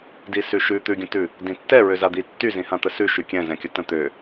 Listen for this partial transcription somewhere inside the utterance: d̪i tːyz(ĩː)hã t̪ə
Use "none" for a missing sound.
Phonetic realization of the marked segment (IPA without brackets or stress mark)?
ĩ